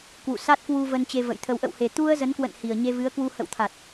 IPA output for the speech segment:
k w ṵ˧˨ s a˦˥ t̚ k w u˧ v ə˧ n t͡ɕ e˧ v ə̰˧˨ j t̪ʰ ə˧ w ʔ ə̰˧˨ w h e˨˩ t̪ u˧ ə̯ z ə˨˦ n k w ə̰˧˨ n h i˨˩ ə̯ ɲ e˧ v ɨ˨˦ ə̯ k w u˧ h ə̰˧˨ w t̪ʰ a˨˩ t̚

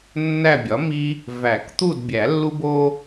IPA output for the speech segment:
nː æ˦˨ bʲ ɒ˩˥ m i˦ | v æ˨˩˦ k t̪ u˦˨ d bʲ æ˨˩˦ lː u˦ b o˦

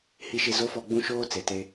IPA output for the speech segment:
h i˨ ʃ ɪ˨ z o˨˦ f ɔ˨ ɡ͡b ũ˦ ʃ oː˦ t͡s e˨ t e˦

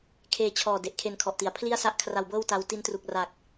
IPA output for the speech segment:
kʰ eː˧ t͡ɕʰ ɔː˨˩ d e˨˩ ʔ kʰ e˧ n kʰ ɔ˨˩ ʔ t i˩˦ a̯ pʰ l i˥˩ a̯ s a˥˩ ʔ kʰ r a˧ w b ɤː˥˩ w t a˦˥ w t i˦˥ n t r u˨˩ k̚ r a˨˩ k̚

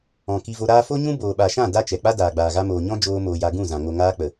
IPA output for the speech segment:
ɔ̃˨ k i˧ v o˧ ɾ aː˦ f o˦ ɲ ũ˦ b oː˨ ɓ a˨ ʃ ã˦˨ d a˦ t͡ʃ ɛ˨ k͡p a˦ d aː˨ ɡ͡b aː˨ ɣ a˧ m oː˨ ɲ ɔ̃˦ d͡ʒ oː˧ m oː˨ j a˧ ɡ ũ˦˨ z ã˨ ŋ o˨ ŋ aː˧ k͡p ə˨

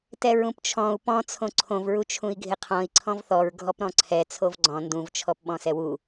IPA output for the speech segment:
t ɛ ɹ ũ p t͡ʃʰ ɔ̃ u̯ p ɔ̃ t͡sʰ õ ǀʰ õ v ɹ u t͡ʃʰ ũ i̯ ɡʱ ɪ qʰ ɔ̃ i̯ ǀʰ ɔ̃ v θ ɔ ɹ ɡʱ ɔ p ɾ ɔ̃ ǀʰ ɛ t͡sʰ o v ɡ͡ǀ ɔ̃ n d ũ v t͡ʃʰ ɔ p ɓ ɔ̃ s ɛ w u

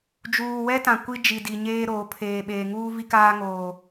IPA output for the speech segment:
d͡ʒ uː˨ w ɛ˦ t ã˨ kʷ i˦ d͡ʒ i˨ d i˨ ɲ eː˦ ɾ oː˨˦ pʰ eː˨ ɓ eː˨ ŋ uː˦ v i˦ k aː˦ ŋ oː˨

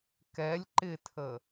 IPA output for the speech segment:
k ɛ lʲ ǃ ɪ tʰ ə

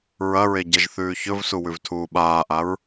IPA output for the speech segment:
ɹ ɐ ɹ e ɟ ɐ ʒ θ ʉː ç ɵ v s u w ʉ v tʰ uː ɓ aː ʔ a ɹ

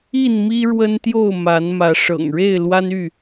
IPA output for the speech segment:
i˥˨ n m i˦ ɻ w ə˦ n t̪ j o˥˨ ʊ̯ m a˨˦ n m ä˨˦ ʂ ɤ̰˨˩ ŋ ɻ e˥˨ ɪ̯ l w a˦ n y˥˨

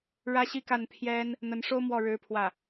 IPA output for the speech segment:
ɻ ä˥ ɕ i˥ k a˥˩ n pʰ j ɛ˥ n | n̪ ə˧˥ n ʂ o˥ ʊ̯ m w ɔ˥˩ ɻ ɻ̩˥ pʰ w ä˥˩

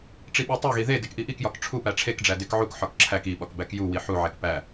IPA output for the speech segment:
ʈ͡ʂ i ɓ o tˤ e ɣ i ð e d e k ʔ i ʔ i k j ɒ k ʈ͡ʂʰ u p æ ʈ͡ʂʰ e k ɖ͡ʐ æ d e k ʕ u k ħ ɒ k ǁʰ æ k i ɓ ɒ k b æ k j u w i ħ u ʕ e k p æ

